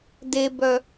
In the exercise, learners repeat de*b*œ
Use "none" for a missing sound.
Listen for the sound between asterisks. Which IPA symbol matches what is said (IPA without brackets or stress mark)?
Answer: b